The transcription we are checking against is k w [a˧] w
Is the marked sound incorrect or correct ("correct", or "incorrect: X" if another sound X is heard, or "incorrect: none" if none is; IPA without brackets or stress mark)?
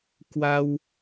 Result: correct